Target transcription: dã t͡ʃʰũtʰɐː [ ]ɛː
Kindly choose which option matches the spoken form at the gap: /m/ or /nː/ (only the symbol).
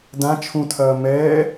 m